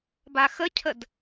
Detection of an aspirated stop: present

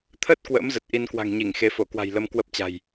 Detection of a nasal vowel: absent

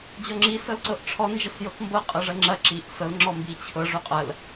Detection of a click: present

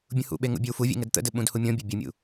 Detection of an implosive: present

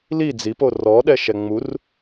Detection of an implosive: present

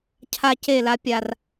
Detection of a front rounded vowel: absent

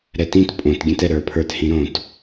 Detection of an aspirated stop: present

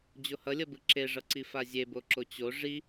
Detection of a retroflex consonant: present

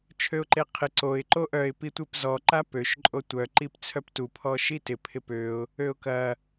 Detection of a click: present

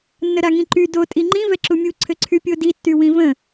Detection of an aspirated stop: present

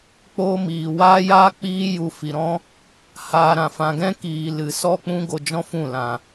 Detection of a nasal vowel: present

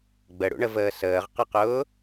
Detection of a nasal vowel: absent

